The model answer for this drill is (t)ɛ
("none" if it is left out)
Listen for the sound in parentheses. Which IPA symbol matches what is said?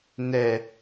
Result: n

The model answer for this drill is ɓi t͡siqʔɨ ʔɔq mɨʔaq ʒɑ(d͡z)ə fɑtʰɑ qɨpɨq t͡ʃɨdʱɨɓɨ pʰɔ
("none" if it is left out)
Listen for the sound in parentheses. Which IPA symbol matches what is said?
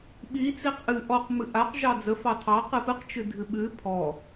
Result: d͡z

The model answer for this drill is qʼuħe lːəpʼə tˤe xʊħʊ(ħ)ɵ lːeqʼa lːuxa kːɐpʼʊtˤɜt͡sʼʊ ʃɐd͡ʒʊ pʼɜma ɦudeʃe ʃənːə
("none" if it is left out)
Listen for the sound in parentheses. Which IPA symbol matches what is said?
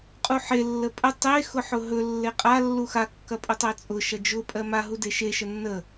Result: ɦ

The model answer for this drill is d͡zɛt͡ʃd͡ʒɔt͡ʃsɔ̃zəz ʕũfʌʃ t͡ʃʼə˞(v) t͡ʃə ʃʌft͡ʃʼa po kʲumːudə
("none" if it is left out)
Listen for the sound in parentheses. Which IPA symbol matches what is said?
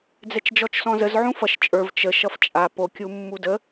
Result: v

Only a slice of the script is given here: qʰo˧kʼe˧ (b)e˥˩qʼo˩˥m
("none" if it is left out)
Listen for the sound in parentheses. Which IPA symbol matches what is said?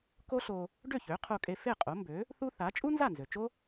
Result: f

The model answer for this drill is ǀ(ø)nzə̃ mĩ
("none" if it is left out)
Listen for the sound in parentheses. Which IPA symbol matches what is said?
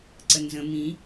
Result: ə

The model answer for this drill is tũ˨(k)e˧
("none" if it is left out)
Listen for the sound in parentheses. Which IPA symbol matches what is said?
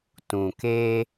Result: k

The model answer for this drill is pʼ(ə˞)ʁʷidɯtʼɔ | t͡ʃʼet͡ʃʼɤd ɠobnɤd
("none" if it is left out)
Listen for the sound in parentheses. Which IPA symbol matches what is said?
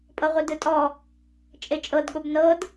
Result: ɤ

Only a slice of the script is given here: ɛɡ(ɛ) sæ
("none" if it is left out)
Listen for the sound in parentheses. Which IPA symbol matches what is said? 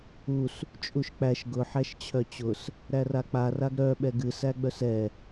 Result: ɨ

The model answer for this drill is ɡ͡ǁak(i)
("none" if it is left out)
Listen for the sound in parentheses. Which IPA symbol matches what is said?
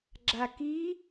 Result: i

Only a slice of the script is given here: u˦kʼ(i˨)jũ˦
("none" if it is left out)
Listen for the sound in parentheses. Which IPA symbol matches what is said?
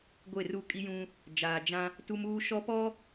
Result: i˦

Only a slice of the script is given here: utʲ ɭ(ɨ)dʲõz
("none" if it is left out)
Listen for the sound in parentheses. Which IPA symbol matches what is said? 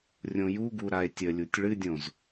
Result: ɨ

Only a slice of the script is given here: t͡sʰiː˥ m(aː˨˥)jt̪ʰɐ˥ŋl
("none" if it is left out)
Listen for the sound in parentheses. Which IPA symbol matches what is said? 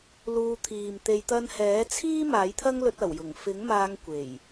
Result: aː˨˥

